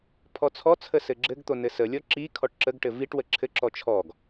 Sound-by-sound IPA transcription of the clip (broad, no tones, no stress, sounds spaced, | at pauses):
pʰ ɔ t͡sʰ ɔ t͡sʰ ə s ɘ ɡ͡ǁ ɘ ɡ t̪ o n ɘ s ə lʲ ɔ ǁ i kʰ ɔ ʈ ǁ ə ɡ ʈ ɘ v i ʈ w ə ǁʰ ɘ ǁ ɔ t͡ʃʰ ɔ ɡ